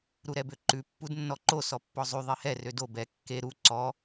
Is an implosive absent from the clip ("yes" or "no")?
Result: yes